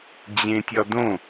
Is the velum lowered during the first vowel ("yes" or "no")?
yes